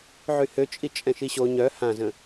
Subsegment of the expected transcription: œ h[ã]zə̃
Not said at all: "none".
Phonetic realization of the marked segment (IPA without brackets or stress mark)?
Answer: ã